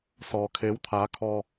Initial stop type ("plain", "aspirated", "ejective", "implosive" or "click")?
aspirated